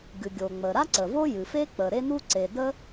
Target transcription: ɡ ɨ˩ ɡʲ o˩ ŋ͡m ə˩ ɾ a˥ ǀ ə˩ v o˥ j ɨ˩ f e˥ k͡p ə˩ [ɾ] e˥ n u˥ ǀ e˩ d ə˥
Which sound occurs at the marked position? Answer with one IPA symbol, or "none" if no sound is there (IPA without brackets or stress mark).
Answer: ɾ